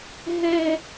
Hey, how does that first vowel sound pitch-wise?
low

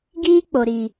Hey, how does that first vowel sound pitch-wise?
high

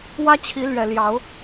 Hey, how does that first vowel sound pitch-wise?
high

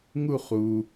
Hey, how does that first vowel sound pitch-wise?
falling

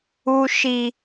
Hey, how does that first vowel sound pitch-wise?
low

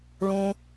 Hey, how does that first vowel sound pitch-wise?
low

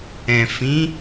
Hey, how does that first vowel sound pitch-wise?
low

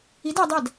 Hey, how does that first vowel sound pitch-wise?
rising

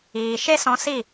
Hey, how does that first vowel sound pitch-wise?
low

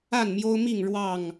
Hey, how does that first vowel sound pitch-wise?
falling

